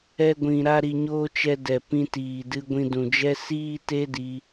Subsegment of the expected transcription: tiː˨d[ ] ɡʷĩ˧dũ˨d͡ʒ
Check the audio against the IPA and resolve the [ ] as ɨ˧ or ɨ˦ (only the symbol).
ɨ˧